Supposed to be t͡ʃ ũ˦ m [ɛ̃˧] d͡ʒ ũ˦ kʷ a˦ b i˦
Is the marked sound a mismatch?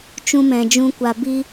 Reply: no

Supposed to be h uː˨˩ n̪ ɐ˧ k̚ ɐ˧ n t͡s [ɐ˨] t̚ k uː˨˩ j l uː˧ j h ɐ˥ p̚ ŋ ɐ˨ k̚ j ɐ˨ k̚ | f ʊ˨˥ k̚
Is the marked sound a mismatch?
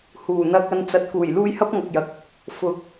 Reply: no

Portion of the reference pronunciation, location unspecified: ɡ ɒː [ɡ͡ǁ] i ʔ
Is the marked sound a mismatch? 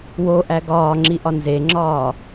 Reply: yes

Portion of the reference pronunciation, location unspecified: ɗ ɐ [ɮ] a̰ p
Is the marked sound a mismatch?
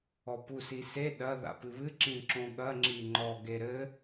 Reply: yes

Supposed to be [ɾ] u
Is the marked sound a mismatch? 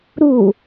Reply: no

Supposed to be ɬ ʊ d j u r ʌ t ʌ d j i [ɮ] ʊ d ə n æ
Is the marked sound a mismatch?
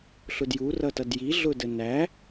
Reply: no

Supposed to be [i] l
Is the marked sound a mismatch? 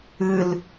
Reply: yes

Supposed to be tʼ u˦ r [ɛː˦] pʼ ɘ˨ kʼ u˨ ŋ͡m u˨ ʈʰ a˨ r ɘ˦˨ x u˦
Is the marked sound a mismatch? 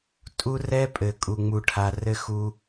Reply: yes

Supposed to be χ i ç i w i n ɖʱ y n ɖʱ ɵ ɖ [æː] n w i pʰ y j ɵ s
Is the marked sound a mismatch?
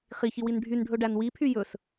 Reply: yes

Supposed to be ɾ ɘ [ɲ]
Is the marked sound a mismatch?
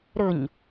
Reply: no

